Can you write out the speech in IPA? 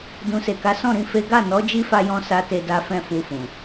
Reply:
d ũ˨ s e˨ k a˨˦ s ɔ̃˦˨ ɾ ĩ˧ f e˦ ɡ a˦˨ n ɔ˨˦ d͡ʒ i˦ f a˧ j ɔ̃˧ s a˦ t e˧ d a˦ f ɛ̃˦˨ f u˧ f ũ˨

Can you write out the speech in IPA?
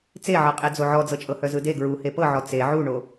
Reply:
t͡s e ʕ ɤ qʼ e d͡z o ʕ ɔ d͡z ɤ t͡ʃʼ ɤ h œ z ɯ d e ɡ ɹ u h e p ɤ ʕ ɔ t͡s e ʕ u ɳ o

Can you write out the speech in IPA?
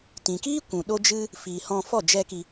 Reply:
t ĩ˨ k iː˦ kʷ ũ˨ ɗ o˦ d͡ʒ ɨ˦ | f iː˨ h ɔ̃˧ f ɔ˦˨ d͡ʒ ɛ˦ k i˧

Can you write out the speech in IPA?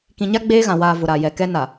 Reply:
k ĩ˨ ɲ a˦ ɡ͡b eː˦ ɣ ã˨ w aː˨ v ʊ˨ ɾ a˨ j ɛ˨ k ɛ˦ n a˨

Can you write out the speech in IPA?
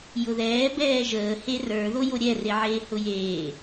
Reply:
j ʊ ð ɛː b ɛː ʒ əː h e r ə˞ ð o j o ɾʲ ɛ r e ʕ eː h ʊ j eː

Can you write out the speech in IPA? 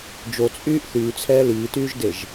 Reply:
d͡ʒ o t͡sʼ yː ʔ θ yː t͡sʰ ɛː l iː t yː ʒ d e ʒ

